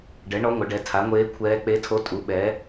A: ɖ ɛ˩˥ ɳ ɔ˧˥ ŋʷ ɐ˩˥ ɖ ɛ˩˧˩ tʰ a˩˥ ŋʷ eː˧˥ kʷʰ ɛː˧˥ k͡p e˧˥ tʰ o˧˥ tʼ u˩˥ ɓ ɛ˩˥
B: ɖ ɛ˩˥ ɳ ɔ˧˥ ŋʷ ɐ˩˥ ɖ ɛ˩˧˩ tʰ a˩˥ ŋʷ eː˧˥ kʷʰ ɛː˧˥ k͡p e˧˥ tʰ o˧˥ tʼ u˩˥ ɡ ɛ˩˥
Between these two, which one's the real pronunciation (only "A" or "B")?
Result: A